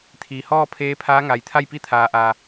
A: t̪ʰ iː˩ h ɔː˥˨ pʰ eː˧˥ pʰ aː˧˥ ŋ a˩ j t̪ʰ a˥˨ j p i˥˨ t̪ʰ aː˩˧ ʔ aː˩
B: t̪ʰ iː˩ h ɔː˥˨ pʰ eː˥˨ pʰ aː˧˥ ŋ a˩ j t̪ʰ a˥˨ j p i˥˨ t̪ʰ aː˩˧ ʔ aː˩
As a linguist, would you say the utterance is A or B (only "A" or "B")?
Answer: A